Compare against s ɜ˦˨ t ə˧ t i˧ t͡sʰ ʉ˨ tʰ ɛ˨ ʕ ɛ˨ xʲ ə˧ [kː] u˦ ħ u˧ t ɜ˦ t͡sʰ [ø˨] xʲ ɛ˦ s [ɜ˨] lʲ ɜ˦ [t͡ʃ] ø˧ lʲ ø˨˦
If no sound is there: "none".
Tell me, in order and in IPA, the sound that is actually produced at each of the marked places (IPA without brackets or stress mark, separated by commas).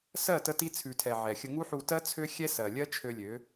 ŋ, ø˦, ɜ˨, t͡ʃʰ